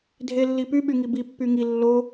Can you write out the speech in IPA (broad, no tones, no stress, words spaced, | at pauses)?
dʱelːipy ɓyŋibi pːyŋi lːo